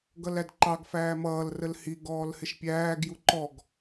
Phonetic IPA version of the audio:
ɡ ʌ l æ d ǃ ɑ ɡ f æː m ʌː l r ə l h i ɡ ɔː l h ɪ ʃ pʲ æː ɡ j u ǃ ɔ ɡ

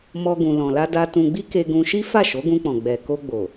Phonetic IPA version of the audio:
m ɔ˦ ɡ ũ˧ l ɔ̃˧ l a˦ d a˧ t ũ˧ ɡ͡b i˦ k e˧ ɡ ũ˧ ʃ i˦ f a˦˨ ʃ o˨˦ ɡ ũ˧ k͡p ɔ̃˨ ɡ͡b ɛ˨ k o˧ ɡ͡b o˨

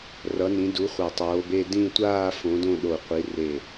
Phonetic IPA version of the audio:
r ʌ˨˦ n ĩ˨˦ d u˨˦ χʷ a˧˩ tˤ oː˨˦ b e˥˧ d ĩ˥˧ tʷ aː˥˧ f õ˨˦ d õ˥˧ ɗ o˧˩ qʷ i˨˦ r e˧˩

